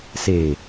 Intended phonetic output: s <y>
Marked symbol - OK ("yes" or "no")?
no